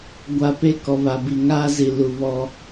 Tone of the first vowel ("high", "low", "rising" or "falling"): low